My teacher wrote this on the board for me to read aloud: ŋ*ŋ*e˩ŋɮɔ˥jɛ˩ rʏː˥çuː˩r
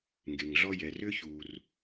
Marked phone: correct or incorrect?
incorrect